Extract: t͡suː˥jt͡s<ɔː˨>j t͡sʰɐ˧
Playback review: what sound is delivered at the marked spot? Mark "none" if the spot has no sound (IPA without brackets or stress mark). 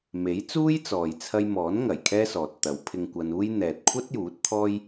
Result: ɔː˨